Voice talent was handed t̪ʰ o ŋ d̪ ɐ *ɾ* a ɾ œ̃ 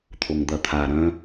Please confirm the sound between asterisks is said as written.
no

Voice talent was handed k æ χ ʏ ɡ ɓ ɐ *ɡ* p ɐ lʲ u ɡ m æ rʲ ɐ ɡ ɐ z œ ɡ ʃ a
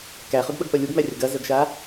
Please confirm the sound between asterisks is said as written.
yes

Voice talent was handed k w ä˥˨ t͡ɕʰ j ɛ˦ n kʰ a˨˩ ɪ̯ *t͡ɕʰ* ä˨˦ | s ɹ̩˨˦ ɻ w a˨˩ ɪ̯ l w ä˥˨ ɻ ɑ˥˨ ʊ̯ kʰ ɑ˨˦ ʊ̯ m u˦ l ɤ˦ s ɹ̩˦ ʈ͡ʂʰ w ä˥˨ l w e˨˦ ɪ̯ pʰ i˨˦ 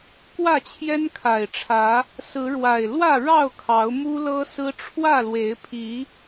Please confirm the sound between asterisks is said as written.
no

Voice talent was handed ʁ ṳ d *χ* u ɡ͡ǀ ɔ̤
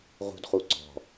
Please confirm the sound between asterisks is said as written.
yes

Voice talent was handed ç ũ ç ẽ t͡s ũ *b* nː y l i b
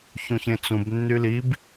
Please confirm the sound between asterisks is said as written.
yes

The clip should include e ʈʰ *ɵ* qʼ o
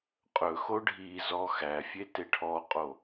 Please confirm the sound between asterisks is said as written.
no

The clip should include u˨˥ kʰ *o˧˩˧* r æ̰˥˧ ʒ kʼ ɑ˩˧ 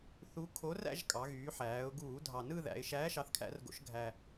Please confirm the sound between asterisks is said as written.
no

